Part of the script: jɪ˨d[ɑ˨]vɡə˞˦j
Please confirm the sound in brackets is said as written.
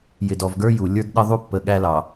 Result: no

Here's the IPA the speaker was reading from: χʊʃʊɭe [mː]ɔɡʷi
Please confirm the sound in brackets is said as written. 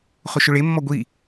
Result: yes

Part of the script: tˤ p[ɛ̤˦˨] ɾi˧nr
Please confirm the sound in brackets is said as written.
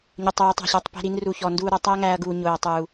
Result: yes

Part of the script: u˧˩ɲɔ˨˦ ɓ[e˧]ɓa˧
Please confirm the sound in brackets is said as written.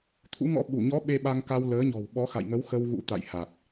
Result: yes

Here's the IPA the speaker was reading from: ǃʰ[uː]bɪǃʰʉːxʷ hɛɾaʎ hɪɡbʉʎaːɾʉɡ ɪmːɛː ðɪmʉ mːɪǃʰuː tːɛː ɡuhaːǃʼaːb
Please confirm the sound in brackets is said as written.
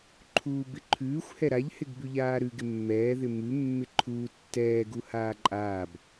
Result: yes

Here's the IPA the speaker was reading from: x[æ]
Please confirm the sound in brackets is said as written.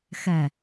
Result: no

